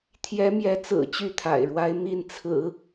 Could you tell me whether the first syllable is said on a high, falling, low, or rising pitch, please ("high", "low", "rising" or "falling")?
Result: rising